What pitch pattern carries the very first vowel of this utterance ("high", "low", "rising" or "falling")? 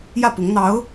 falling